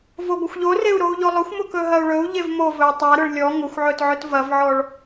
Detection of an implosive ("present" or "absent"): absent